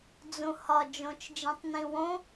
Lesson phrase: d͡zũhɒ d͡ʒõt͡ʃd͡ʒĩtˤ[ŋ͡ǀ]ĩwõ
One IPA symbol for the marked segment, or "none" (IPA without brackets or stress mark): n